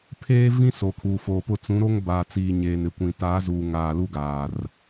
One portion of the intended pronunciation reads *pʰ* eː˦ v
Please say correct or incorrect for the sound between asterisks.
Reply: correct